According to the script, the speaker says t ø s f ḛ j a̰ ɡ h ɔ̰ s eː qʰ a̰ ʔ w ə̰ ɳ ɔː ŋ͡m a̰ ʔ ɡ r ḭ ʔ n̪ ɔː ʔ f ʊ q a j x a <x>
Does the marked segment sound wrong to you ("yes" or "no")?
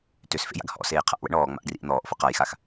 no